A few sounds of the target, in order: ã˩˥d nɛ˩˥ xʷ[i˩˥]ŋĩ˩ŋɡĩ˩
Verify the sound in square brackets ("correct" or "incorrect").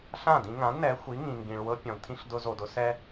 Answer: correct